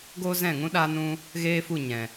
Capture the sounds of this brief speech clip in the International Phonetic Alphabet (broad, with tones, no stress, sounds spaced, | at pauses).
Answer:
ɡ oː˦ z ɛ̃˦˨ ŋ ũ˦ ɗ aː˦ n ũ˦ | ɣ eː˦ f u˦˨ ɲ ɛ̃˨